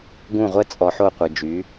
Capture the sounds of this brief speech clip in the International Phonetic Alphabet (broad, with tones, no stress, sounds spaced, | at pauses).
ɡ ũ˦˨ ʁʷ ɛ˦ t͡sʼ ɔ˧ ħ o˦˨ qʷ ə˨ d͡ʒ y˨˦